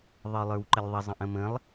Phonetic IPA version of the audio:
ðˤ ə˞ lˠ ə˞ w ǃ ə lʲ ðˤ ə zˤ ə̃ ʔ ə̃ m ə̃ lˠ

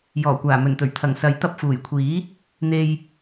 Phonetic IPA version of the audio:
j ɔː˨˩ kʷ aː˨˩ m ɵ˨˩ n t̪ ɵ˨˩ ɥ t̪ʰ ɐ˨˩ ŋ s ɐ˨˥ j t̪ ɐ˧ p̚ f uː˨˩ j kʷʰ iː˨˥ | n̪ e˨ j

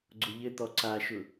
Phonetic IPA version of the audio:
ɡ͡ǀ ʊ ʎ ɘ t̪ ɔ ǀ a ʃ ʊ

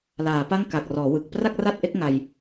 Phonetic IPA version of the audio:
l aː˩˦ p a˥˩ ŋ k a˨˩ k̚ r ɔː˩˦ w ɯ˨˩ k̚ p r a˥˩ k̚ r a˥˩ t̚ ʔ e˦˥ k̚ ŋ a˧ j

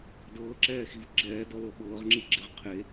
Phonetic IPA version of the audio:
d ɤː ǁ ɛː x i v ɡ͡ǁ ɛː d ɔ l ɤ ɓ ɤː ʁ ŋ͡ǁ i ɡ͡ǁ e ʁ qʰ e

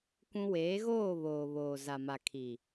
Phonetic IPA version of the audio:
kʷ ũ˦ w eː˨˦ ɣ oː˦˨ β oː˨ β oː˨ z a˨ m a˨ kʰ i˨

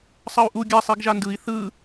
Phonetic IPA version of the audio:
sˤ ʌ u̯ ʔ u ɡʲ a sˤ i ɡ ʒ a n d ɯ i̯ θ ɯ

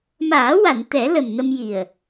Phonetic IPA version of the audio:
m aː˨˩˦ w a˨˩˨ n t̪ ɛ˨˩˦ l ə˨˩ m n ə˧ m j i˨˩ ə̯

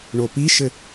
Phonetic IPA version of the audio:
ɳ o p i ʃ ɘ

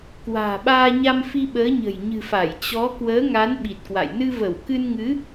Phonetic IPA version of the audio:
k w a̤ː˨˩ ɓ aː˧ ɲ a˧ m f i˧ ɓ əː˨˦ ɲ ə̤˨˩ j ɲ ɨ̤˨˩ f a˧˩ j t͡ɕ ɔ˨˦ k w əː˨˦ ŋ a˨˦ n ɓ i˨˩ t̚ k w a̰˧˨ j n ɨ˧ v ə˧˩ w k ɨ˧ n ŋ ɨ˨˦

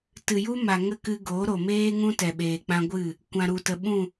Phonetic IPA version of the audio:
t ɨ˨ j u˦ m a˨ ŋ ə˦˨ k ɨ˧ ɡ o˨˦ ɾ o˨ m eː˦ ŋ ũ˦ t ɛ˨ ɓ eː˨ k͡p ã˧ ɡʷ ɨ˦˨ | kʷ ã˨ ɾ u˨ t ə˨ ɓ ũ˦˨

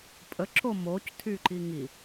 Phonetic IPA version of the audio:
pʼ ə ǁ o m o c tʰ y ǃ i ŋ i

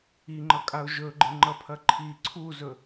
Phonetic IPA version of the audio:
i ŋ͡ǃ ʌ kʼ a ʊ̯ ʒ ɵ ɡ͡ǃ ɪ ŋ͡ǃ ʌ pʰ ɐ ǃʰ i ǀʰ u z ɵ

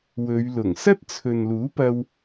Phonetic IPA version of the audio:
w ɵ˨˧ ɥ l ʊ˨˩ ŋ s ɐ˥ t̚ t͡sʰ ɵ˨ n l uː˨˥ p ɐ˧ w

